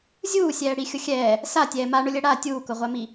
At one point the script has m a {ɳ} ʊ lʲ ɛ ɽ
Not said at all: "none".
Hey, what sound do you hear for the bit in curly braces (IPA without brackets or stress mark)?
ɳ